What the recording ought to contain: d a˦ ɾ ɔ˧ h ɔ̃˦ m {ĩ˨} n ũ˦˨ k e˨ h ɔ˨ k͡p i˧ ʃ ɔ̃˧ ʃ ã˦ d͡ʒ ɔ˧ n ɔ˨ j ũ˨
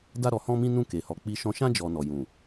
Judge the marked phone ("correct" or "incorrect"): incorrect